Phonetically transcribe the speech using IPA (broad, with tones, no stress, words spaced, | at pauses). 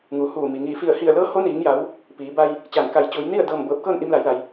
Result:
ŋuː˩˧huː˧˩ mi˩ ŋiː˧˩ fi˧˩ə̯hi˧˩ə̯lɤː˧˥ ho˧˥niː˩˧ŋja˩˧w | piː˩˧ba˧j | t͡ɕaː˧˩n ka˧˩j t͡ɕuː˩˧jni˥˨ə̯ dɤː˧˩m bɤː˧˩p̚kɤː˥˨n ʔi˧mla˩˧jla˩j